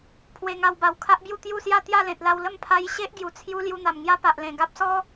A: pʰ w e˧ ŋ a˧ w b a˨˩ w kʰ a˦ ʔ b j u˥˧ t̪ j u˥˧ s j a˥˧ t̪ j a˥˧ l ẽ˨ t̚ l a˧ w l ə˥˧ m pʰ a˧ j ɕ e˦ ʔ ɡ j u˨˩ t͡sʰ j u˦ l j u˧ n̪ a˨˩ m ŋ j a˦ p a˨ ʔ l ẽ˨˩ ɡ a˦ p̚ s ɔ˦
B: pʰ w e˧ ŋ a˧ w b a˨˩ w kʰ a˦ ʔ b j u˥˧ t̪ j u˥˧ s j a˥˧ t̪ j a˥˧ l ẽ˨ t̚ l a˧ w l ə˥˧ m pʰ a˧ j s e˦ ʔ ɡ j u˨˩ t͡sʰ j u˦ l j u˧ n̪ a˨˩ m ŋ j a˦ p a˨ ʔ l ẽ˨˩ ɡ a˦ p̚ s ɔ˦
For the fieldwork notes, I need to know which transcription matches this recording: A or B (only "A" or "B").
A